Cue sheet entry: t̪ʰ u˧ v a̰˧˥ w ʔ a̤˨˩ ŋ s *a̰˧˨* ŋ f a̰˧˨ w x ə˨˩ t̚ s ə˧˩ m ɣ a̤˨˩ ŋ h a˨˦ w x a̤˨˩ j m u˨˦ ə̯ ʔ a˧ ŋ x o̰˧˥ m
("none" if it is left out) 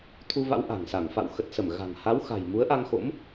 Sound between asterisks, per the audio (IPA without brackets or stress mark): a˧˩